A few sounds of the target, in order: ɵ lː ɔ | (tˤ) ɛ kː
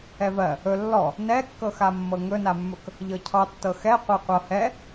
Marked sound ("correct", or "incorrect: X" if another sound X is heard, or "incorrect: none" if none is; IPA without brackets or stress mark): incorrect: n